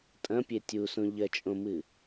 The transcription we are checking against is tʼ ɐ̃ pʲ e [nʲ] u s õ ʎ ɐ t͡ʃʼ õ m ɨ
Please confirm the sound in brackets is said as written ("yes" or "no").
no